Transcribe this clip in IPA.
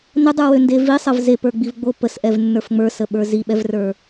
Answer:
n ə dˤ ə˞ w ø n d e v i sˤ ə v z e p ə˞ ɡ͡b i v ɡ͡b o p ə s ʔ ɛ v nː ə˞ f ŋ͡m ə˞ s ə ɓ ə˞ z i ɓ ɛ v r ə˞

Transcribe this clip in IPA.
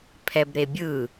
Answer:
pʰ ɛ b ɾ e bʲ ɯ

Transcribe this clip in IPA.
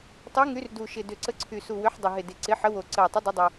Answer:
tˤ u˨˦ ŋ y˨˦ r d u˨˩ ʃ ɪ˨˩ d ʏ˨˩ ǀ ə˨˦ ǀʰ y˨˩ s u˨˩ w ʏ˨˦ ħ dˤ ʏ˨˩ ɦ ɪ˨˩ d ɪ˨˩ ǀ ɪ˨˦ ħ ə˨˦ w o˨˩ ǀ ə˨˩ ɪ̯ tˤ ɪ˨˦ dˤ ɪ˨˦ dˤ u˨˩

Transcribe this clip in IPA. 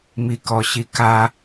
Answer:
m i k ɔ ɕ i k a

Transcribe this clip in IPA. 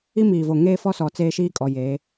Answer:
i˦ m iː˨ v o˨ ŋ eː˦ f ɔ˦ s ɔ˨ t͡s eː˦ ʃ iː˦ kʼ ɔ˨ j eː˨˦

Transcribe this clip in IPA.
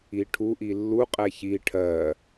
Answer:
i ʈʰ u ʔ i lː u qʼ ɛ ç i ʈʰ ɜ

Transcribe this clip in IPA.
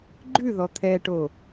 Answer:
ɡ͡ǃ ʉ ð ɔ t̪ʰ ɛ ʈ o

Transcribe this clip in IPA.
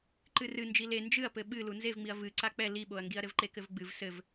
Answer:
ǃ ɨ r ɨ n d͡ʒ i l e n d͡ʒ ɨ ɐ̯ p ɘ ɓ ɨ l u n z e v ŋ͡m i ɐ̯ v ɨ ǀ a k͡p ɛ l i ɓ o ɐ̯ ŋ ɡ i ɐ̯ ɾ ɘ v ǃ e k ɘ v ɡ͡b ɨ v s ɘ v

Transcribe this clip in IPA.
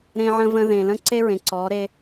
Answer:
ɾ ẽ˦ ʕ ə̃˦ v ə̃˦ ð ẽ˨ l ə̃˦ ǀ e˦ ɹ ẽ˨ ǀ ɔ˨˦ ɾ e˦

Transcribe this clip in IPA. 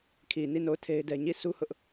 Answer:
kʰ i˨ n i˦˨ n o˦˨ ʊ̯ tʰ e˦ ɪ̯ d ɛ˦ ɲ i˦˨ sʰ u˦ h ʊ˦ ʔ

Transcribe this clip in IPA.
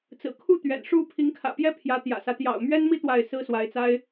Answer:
t͡s ɹ̩˨˩ kʰ u˥˩ t̪ ɥ ɛ̰˨˩ n ʂ u˥˩ pʰ i˧˥ ŋ kʰ ä̰˨˩ p j ɛ˥ pʰ j ä˧˥ t̪ j ä̰˨˩ s ä˦ t̪ j ɑ̰˨˩ ʊ̯ m ɥ ɛ˥ n m i˥ t̪ w a˥˩ ɪ̯ s ɹ̩˥ s w a˧˥ ɪ̯ t͡s a˥ ɪ̯

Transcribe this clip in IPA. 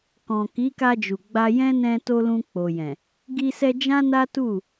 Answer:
k ɔ̃˨ k i˨˦ k a˧ d͡ʒ u˨ ɡ͡b a˧ j ɛ̃˦ n ɛ̃˧ t o˧ l ũ˧ k͡p o˨ j ɛ̃˨ | ɡ i˧ s ɛ˧ d͡ʒ ã˦ n a˦ t u˦˨

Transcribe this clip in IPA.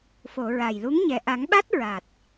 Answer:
f o˨˩˨ ɹ a˨˩ j l u˧˥ ŋ ɲ ɛ˨˩ ʔ a˨˩˦ ŋ ɓ a˦˥ t̚ ɹ a˨˩ t̚

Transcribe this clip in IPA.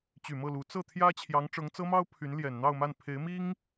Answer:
t͡ɕ y˨˩ m ɤ˥˩ l u˧˥ t͡s ɤ˥˩ t̪ʰ j ä˥ t͡ɕʰ j ɑ˧˥ ŋ ʈ͡ʂ ɤ˧˥ ŋ t͡s ɤ˥ m ɑ˥ ʊ̯ pʰ y˧˥ n l j ɛ˨˩ n n̪ ɑ˥˧ ʊ̯ m a˥˩ n pʰ e˧˥ ɪ̯ m i˥ ŋ

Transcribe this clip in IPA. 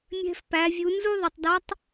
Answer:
mʲ ɛ̤˧ f p æ˩˧ vʲ u˩˧ n z u˥ ðˤ ə˩ tˤ d ɒ˧˥ tˤ

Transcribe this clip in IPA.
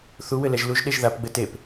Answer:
θ u w ɘ l ɛ ʒ l u ʒ ɗ e ʒ ð a p ɡ͡b ɘ t e p

